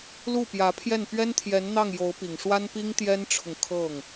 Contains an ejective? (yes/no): no